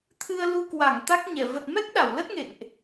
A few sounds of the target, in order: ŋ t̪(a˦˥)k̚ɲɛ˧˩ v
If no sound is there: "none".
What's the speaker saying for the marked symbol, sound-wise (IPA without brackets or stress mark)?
a˦˥